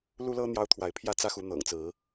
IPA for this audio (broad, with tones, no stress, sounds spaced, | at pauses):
l u˦ l ɤ˦ n̪ j ɑ˦ ʊ̯ t̪ʰ w a˨˦ ɪ̯ pʰ j ä˥˨ t͡s ä˦ x u˨˦ n̪ ɤ̰˨˩ ŋ t͡s ɹ̩˨˦